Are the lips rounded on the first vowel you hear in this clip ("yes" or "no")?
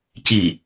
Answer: no